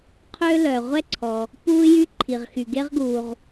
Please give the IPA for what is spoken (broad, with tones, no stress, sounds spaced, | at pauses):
qʰ ø˥ l œ˩ ʁʷ ɛ˥ ǀʰ ɔ˩ | p uː˥ j y˥ ǃʰ i˩ ʁ x y˩ ɡ e˥ ʁ ɡ uː˩ ʁ